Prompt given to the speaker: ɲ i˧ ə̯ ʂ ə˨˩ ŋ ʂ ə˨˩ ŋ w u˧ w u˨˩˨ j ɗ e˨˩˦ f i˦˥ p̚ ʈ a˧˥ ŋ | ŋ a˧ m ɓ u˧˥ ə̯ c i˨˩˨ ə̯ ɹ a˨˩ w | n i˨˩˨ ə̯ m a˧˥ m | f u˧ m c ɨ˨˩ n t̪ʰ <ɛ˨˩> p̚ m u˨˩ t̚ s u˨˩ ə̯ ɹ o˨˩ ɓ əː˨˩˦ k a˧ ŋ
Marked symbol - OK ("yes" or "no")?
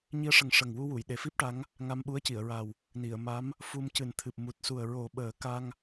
no